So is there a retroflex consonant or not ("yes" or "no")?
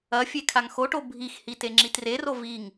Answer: yes